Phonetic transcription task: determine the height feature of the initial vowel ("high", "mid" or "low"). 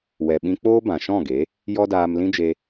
mid